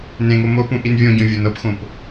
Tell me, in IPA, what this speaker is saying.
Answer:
n ẽ ŋ o m o p ũ ʔ i n vʲ õ ɟ õ vʲ o n ɤ p x õ p

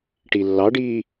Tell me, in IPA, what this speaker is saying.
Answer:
ʈ i lː ɑ ɖ iː

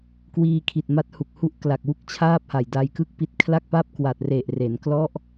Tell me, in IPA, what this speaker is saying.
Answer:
k w iː˧ kʰ i˨˩ t̚ m a˦˥ t̚ h u˨˩ k̚ h u˦˥ ʔ k l a˨˩ k̚ w u˥˩ k̚ t͡ɕʰ aː˥˩ p̚ h a˨˩ j d a˧ j k ɯ˥˩ k̚ p i˦˥ t̚ kʰ l a˥˩ k̚ p a˥˩ p̚ k w a˨˩ t̚ r e˨˩ ʔ r e˩˦ n k l ɔ˦˥ ʔ

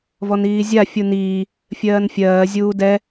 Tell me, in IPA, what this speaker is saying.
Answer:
v ɔ n iː zʲ a fʲ u n iː | fʲ ɜː n fʲ ɜː zʲ uː d ɛ

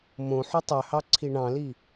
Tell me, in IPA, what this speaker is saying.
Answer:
m õ ħ u tˤ ø h ɑ ǀʰ i ɳ ɑ̃ l i

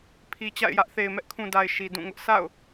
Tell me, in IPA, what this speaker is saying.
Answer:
pʰ i˨ t͡ɕ a̰˦˨ ɪ̯ j ä˦ ʔ θ e˨ ɪ̯ m ɛ˦ ʔ kʰ ũ˨ d a˨ ɪ̯ ʃ i˨ d ũ˦˨ ŋ ʊ˦ ʔ s a̰˦˨ ʊ̯

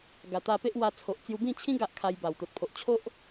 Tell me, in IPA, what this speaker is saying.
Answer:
ɡ a˨˩ t̪ a˧ p e˦ ʔ w a˧ t͡sʰ o˨ ʔ t͡s j u˧ b ĩ˥˧ t͡ɕʰ ĩ˦ ɡ a˦ ʔ kʰ a˧ j b a˨˩ w t̪ o˨ t̚ pʰ o˨ ʔ t͡ɕʰ o˦ ʔ

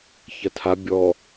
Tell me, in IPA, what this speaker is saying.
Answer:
ç ɐ tʰ a bʲ ɔ

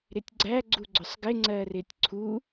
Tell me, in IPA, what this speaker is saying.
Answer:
ɾ ɪ tʲ ɡ͡ǀ æ ɡ͡ǀ u ɡ͡ǀ ʊ sˤ ɡ ɪ ŋ͡ǀ ɜ r ɪ tʲ ǀʰ u

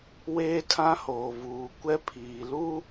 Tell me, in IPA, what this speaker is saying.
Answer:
w eː˦ tʰ ã˦ h oː˨ v uː˨ kʷ ɛ˦ pʰ iː˨ l u˦

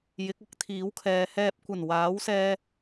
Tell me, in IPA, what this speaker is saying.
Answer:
j ɪ˨˥ k̚ ɐ˥ k̚ t̪ʰ iː˨˥ w kʰ ɛː˨˧ h ɛː˨ p̚ kʷ ɐ˨˩ n w aː˨˥ w s ɛː˧

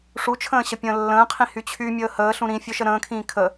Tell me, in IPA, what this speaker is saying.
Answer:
ʂ u t͡ʃʰ ə̃ː ɕ ə pʲ ə̃ː lː ə̃ː qʰ ĩ h y t͡ɕʰ y mʲ əː h əː ɬ ũ ɾ ĩ fʲ ø ʃ ə ɾ ə̃ː kʰ ĩː kʰ ə

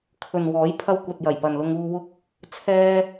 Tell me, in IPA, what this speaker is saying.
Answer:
kʰ ɵ˨ n w ɔː˨˥ j pʰ ɐ˧ w kʷ ɐ˨ t̚ j ɐ˨˩ j p ɐ˨ n l ʊ˧ ŋ uː˧ w ʊ˥ k̚ | t͡sʰ ɛː˧

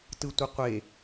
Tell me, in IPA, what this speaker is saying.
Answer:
t ɯ tʷ ʌ qʷ e

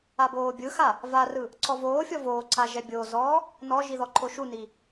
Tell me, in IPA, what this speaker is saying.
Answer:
a b oː bʲ ɯ x a | v a r ɯ | ǀʰ ɔ v oː fʲ ɔ v oː ǀʰ a ʒ ɛ bʲ oː z ɔː | n ɔ ʒ i ð ɔ ǃʰ o ʃ u n i

